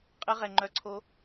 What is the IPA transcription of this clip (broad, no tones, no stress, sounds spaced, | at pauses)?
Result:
qʼ ə ʁ ɛ ŋ͡ǃ œ ǀʰ o